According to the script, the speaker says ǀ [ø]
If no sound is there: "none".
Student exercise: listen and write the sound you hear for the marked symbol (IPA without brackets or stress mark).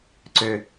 ø